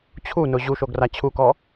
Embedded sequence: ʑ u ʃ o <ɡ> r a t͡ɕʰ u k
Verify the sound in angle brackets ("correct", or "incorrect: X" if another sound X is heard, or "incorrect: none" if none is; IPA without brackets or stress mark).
correct